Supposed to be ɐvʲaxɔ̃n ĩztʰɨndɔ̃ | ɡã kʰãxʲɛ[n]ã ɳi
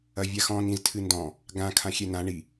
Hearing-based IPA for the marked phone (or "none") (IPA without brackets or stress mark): n